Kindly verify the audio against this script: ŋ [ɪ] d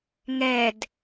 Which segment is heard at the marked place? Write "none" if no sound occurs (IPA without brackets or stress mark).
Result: ɛ